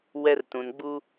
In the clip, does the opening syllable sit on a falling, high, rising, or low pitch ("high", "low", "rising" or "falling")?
high